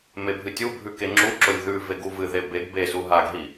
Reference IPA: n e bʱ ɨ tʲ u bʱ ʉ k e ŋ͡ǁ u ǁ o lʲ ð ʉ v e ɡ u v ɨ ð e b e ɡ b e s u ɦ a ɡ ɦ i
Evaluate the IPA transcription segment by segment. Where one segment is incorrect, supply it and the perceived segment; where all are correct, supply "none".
n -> m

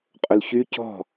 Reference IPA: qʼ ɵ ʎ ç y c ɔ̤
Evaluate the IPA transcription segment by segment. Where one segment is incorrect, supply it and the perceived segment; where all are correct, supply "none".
ʎ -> l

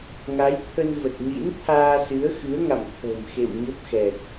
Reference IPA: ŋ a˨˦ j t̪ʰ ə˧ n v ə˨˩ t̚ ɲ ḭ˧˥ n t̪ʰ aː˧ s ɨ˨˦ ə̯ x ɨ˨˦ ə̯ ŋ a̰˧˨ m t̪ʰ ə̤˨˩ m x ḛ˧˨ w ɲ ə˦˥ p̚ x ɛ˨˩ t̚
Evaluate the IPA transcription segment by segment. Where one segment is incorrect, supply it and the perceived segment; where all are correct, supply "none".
none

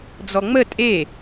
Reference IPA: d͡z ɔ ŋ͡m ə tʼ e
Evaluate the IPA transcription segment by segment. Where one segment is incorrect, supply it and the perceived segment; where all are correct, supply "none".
none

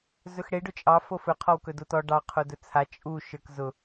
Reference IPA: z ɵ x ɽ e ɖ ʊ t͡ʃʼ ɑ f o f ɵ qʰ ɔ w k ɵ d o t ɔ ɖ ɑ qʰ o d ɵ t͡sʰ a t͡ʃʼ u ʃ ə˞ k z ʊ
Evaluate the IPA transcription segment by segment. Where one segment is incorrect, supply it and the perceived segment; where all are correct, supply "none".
none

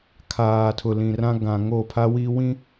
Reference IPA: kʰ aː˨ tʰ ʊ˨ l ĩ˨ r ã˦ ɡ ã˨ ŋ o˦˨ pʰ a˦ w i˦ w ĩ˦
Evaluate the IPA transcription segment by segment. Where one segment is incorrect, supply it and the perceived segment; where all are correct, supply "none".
none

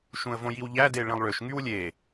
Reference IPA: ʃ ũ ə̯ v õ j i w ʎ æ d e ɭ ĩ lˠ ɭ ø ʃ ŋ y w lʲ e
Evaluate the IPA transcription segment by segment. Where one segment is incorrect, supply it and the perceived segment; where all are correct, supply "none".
none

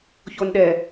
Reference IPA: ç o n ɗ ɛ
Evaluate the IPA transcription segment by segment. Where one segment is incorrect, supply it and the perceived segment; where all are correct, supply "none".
none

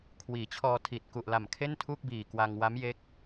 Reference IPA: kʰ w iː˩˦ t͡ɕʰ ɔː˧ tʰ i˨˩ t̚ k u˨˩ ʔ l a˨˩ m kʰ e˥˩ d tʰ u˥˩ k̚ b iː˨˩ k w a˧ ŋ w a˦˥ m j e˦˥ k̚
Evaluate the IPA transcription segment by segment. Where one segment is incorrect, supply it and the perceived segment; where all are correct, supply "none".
d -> n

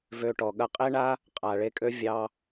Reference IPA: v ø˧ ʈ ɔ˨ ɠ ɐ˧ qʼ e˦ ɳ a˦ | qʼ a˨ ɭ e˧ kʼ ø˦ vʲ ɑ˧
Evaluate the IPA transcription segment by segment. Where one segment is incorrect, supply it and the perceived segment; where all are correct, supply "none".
none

